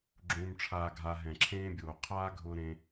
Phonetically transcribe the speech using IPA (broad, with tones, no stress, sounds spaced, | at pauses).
ɡ͡ǁ ũː˧ m ʈ͡ʂʰ aː˧ ɡʱ a˧ ɦ ɛ̃˨ ǁʰ ẽː˦ bʲ oː˨ qʰ aː˦ ɡʱ ʊː˧ ɾ ẽ˧